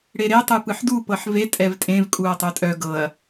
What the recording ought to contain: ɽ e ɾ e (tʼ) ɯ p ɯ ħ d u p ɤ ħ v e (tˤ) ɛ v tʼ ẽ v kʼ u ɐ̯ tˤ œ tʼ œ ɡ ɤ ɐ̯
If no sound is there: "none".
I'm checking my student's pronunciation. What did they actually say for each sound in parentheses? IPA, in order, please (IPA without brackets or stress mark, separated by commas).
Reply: tˤ, tʼ